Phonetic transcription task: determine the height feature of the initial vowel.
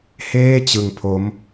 mid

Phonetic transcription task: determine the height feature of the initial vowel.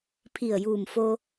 high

